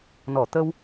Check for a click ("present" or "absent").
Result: absent